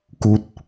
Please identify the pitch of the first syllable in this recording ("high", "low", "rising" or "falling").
low